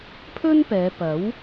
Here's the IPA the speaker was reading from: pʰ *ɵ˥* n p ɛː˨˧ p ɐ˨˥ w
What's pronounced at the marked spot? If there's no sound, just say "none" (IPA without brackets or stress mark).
ɵ˥